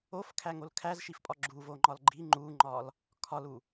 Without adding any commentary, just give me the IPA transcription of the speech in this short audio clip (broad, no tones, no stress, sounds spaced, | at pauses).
o f kʰ æ ŋ o l kʰ æ z ʃ i f pʼ ɒ ɡ͡ǁ u v o ŋ͡ǃ ɒ l ɡ͡ǃ i ŋ͡ǃ u ŋ͡ǃ ɒ l | kʰ ɒ l u